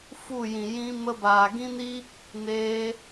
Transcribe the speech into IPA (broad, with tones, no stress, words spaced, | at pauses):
fu˦˨jĩ˨ jĩ˧ mə˧baː˨ɡĩ˦ni˦ | neː˧